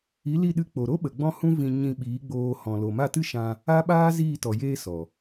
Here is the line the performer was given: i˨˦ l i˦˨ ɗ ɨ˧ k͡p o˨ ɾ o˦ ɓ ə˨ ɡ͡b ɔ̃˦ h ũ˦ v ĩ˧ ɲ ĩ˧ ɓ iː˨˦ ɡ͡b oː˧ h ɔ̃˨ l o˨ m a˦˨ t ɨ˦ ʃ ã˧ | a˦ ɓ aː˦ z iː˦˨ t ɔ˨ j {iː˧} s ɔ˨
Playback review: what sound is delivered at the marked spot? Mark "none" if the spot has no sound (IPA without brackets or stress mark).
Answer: eː˧